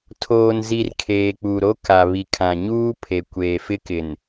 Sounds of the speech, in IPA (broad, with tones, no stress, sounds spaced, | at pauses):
tʰ oː˨ n z i˨ r kʰ eː˨ k͡p u˨ ɾ o˦ k a˨ β i˨ kʰ ã˨ ɲ uː˦ pʰ e˨ kʷ eː˨ f ɪ˦ k ɪ˨ n